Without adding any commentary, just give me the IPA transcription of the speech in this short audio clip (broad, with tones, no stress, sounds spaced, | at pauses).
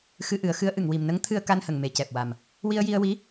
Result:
x ɨ˧ ʔ ɨ˨˩˦ ə̯ x ɨ˧˥ ə̯ ʔ ɨ˨˩˨ ŋ w i˨˩ m n ə˧˥ ŋ t̪ʰ ɨ˧ ə̯ k a˧ n h ə˨˩ ŋ m e˨˩ c ɛ˨˩ p̚ w a˨˩ m | w i˧ ə̯ j i˧ ə̯ w i˧˥